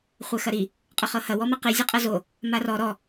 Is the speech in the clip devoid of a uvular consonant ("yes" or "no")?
no